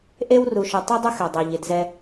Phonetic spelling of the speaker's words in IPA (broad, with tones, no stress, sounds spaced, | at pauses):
ʔ e˦ w r u˨ ʃ ʊ˨ tˤ i˦ dˤ ʊ˦ x ɛ˨ dˤ e˨ ʎ ɪ˨ d z ɛ˦